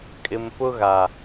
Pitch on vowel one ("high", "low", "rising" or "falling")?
low